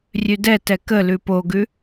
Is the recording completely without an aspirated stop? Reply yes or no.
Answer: yes